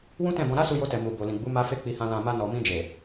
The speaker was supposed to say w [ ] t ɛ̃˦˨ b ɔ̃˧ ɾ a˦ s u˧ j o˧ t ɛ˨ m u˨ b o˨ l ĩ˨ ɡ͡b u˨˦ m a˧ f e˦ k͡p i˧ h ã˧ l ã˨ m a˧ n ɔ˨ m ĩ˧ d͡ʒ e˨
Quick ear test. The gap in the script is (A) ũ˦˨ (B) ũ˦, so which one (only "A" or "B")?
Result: B